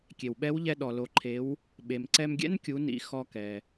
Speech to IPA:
kʲe˩wɓɛ˧˥wʎɛ˧ ɗɔ˩lo˩˧ǃʰe˩˧w | ɓe˩m ǀɛ˧mɡʲɛ̰˥nkʲu˩˧nḭ˩˧ xɔ˧kɛ˩

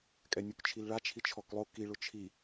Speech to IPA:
kʼɛnʲukt͡ʃʰilɭa t͡ʃʰit͡ʃʰɔklˠo ki ɭʊt͡ʃʰi

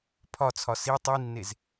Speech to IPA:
pʰɒt͡sʰɒ si tˤinːez

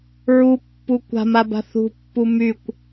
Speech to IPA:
ɹupːu kʷa̤maba̤ θṳpːu mykʷ

